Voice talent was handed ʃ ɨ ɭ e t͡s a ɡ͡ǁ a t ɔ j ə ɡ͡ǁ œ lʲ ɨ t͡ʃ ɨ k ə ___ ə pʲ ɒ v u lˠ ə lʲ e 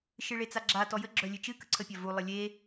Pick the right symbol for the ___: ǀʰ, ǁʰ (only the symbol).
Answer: ǀʰ